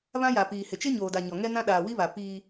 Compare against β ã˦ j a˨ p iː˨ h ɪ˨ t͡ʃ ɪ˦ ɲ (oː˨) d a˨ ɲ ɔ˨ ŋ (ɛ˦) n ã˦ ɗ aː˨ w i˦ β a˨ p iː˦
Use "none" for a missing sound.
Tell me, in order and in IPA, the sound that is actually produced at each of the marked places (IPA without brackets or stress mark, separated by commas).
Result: oː˨, ɛ˦